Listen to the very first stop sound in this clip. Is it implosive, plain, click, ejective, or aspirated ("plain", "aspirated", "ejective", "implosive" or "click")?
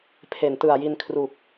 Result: aspirated